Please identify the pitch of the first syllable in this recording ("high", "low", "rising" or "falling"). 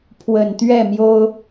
low